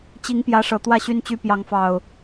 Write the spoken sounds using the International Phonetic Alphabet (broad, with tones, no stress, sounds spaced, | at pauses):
t͡ɕ i˨˦ ŋ p j ä˨˦ ʂ ɤ˨˩ t̪ w ä˥˨ ɕ y˦ n t͡ɕ y˦ p j ɑ˨˦ ŋ f ɑ˨˩ ʊ̯